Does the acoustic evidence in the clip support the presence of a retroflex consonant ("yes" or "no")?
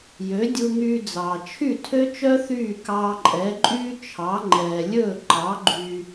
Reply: no